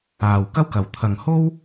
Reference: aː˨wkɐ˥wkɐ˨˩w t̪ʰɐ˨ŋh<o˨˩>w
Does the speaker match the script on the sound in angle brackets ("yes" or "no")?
no